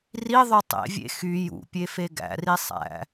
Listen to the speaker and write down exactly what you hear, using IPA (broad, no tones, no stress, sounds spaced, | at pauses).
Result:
r i ðˤ ø tˤ ḛ vʲ ḛ x y j ṵ pʲ e f e ɡ æ̰ r i sˤ æ̰